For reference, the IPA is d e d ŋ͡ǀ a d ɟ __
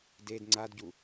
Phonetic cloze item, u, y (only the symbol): u